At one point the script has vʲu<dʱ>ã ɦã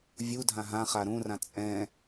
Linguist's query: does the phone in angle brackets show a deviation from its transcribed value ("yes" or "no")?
no